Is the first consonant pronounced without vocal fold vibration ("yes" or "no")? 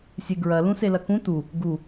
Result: yes